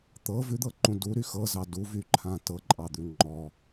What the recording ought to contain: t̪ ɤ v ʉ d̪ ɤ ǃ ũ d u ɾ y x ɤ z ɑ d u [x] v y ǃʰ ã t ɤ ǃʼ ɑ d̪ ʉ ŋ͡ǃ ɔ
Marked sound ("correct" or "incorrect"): incorrect